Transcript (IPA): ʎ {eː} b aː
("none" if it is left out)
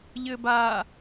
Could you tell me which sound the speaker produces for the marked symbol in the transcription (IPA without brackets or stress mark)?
ɘː